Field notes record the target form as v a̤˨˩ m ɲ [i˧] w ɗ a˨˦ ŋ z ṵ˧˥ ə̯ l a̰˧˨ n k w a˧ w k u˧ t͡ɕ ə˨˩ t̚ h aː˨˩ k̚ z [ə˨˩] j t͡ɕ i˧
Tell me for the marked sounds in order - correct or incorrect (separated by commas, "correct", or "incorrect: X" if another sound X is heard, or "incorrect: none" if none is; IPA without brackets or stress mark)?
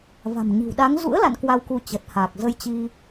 incorrect: i̤˨˩, incorrect: ə˧